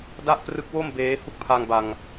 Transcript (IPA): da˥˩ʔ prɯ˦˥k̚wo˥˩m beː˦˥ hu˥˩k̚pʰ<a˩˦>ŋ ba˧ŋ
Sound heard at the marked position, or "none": a˧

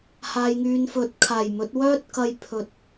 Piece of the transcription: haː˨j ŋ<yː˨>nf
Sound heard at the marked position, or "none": yː˨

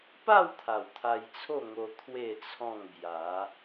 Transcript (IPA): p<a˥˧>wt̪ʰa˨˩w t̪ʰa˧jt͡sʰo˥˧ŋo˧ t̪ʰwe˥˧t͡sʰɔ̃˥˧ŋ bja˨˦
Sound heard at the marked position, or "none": a˥˧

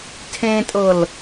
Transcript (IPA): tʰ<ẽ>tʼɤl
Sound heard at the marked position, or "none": ẽ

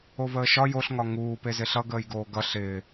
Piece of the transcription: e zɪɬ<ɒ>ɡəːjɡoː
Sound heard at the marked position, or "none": ʌ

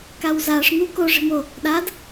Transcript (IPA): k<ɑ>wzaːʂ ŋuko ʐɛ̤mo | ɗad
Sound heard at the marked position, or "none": a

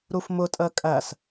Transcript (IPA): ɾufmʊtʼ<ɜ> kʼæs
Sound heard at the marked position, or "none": ɜ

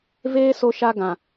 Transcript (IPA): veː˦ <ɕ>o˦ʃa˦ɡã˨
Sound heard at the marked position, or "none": s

